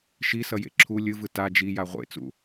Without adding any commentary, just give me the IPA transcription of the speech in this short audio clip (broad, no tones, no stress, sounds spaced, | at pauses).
ʃ i s ʌ j ḛ ǁʰ u lʲ ɯ v ɯ t a d͡ʒ i j a ʁʷ ḛ t͡s ṵ